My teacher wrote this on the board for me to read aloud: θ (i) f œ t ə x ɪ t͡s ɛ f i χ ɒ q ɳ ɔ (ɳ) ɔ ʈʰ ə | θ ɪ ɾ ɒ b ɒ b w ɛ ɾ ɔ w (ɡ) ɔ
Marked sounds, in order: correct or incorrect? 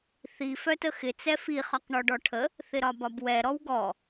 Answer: correct, incorrect: ɖ, correct

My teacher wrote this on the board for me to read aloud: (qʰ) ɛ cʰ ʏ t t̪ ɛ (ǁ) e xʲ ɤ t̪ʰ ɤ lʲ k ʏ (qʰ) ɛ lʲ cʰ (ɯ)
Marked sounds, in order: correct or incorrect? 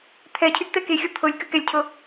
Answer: incorrect: t̪ʰ, incorrect: k, incorrect: k, incorrect: ɤ

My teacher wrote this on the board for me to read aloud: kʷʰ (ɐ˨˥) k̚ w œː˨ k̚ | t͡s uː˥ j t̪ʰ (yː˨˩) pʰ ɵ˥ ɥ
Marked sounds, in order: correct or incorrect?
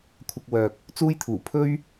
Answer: incorrect: ɐ˧, incorrect: uː˨˩

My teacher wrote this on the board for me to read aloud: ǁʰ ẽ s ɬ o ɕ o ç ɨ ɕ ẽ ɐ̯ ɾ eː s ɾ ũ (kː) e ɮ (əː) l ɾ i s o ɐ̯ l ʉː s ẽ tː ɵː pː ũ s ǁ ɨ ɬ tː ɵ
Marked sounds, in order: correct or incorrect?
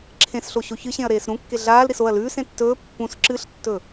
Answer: correct, incorrect: aː

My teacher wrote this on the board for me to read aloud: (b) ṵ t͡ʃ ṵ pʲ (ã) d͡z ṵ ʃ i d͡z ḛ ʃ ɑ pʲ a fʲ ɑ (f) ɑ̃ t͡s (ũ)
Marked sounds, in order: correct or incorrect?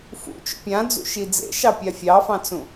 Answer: incorrect: f, correct, correct, correct

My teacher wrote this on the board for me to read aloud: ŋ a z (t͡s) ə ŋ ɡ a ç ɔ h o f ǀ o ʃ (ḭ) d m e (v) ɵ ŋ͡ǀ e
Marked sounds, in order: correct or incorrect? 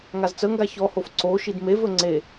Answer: correct, incorrect: i, correct

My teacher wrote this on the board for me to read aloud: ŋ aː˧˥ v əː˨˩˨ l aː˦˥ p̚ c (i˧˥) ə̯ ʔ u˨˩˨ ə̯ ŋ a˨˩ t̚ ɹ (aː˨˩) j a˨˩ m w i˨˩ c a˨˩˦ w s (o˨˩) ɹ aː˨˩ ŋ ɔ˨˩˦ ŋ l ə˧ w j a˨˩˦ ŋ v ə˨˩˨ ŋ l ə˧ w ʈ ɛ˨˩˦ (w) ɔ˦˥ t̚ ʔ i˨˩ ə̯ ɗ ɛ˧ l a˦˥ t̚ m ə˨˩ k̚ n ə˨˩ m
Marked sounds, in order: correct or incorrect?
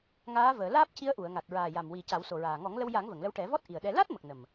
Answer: correct, correct, correct, incorrect: v

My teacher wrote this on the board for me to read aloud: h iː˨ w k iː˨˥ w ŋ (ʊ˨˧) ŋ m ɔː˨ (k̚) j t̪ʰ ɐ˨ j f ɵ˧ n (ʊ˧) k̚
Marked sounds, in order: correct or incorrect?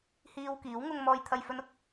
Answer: incorrect: ʊ˧, incorrect: none, correct

